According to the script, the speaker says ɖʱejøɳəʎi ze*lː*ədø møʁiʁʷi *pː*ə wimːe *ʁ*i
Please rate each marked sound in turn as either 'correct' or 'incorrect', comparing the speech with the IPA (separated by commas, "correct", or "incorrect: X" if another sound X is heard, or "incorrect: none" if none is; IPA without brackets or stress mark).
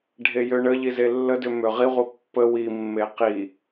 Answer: correct, correct, incorrect: q